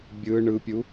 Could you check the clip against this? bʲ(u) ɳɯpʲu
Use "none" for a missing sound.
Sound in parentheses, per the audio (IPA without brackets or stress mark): ɯ